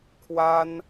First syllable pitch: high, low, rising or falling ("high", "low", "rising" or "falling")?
high